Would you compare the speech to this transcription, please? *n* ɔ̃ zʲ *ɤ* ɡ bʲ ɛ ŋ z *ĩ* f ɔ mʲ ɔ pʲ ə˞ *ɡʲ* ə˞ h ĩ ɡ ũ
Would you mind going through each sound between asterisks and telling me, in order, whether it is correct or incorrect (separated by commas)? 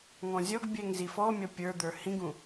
incorrect, incorrect, incorrect, incorrect